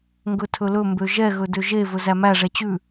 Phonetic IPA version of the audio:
ŋ ɡ ɵ tʰ ɵ l ɵ m b ø ʒ ɛ ɣ ɵ d ø ʒ e v ɵ z æ m æ ʐ ɛ t͡ɕ ʉ

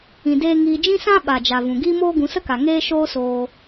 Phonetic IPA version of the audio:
ĩ˧ d eː˦ ŋ iː˧ d͡ʒ ĩ˦ s ã˦ ɓ a˨ d͡ʒ a˨ v ũ˨ ɡ iː˦ m oː˦ ɡ ũ˨˦ s ə˦ k a˨ ŋ eː˧ ʃ oː˦ s oː˧

